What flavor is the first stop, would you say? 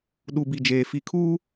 implosive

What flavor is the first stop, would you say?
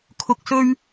aspirated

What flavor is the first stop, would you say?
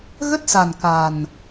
plain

